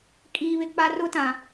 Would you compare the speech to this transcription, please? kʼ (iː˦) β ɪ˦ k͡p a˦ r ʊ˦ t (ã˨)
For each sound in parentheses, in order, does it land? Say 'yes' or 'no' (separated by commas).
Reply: yes, yes